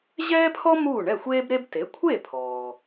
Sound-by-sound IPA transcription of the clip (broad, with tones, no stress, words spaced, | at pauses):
ʑɛː˥pʰɔ˥ muː˥˩ɳɛ˥˩xʷeː˥bɾe˥b te˩˥kʷʰe˥˩pʰɔː˩